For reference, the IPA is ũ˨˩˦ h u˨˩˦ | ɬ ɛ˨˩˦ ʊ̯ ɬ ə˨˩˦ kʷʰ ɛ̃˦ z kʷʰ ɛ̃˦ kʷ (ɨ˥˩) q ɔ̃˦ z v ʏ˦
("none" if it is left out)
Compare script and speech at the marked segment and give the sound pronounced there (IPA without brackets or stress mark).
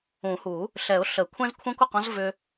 ə˥˩